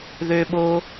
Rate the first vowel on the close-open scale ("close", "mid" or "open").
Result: mid